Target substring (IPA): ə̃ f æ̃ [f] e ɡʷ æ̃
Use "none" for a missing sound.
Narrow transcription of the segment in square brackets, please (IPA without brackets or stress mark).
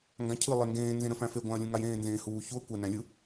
f